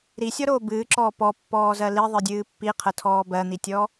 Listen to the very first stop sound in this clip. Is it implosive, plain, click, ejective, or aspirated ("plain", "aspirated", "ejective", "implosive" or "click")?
plain